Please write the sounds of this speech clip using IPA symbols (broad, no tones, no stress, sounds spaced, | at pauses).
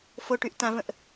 f o ʈ y ʔ t ã v ə̃ ʔ